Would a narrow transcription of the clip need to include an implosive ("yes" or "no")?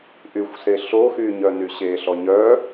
no